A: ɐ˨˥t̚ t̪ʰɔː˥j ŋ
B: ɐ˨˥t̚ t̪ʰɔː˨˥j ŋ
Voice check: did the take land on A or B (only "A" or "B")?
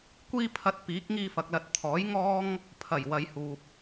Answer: B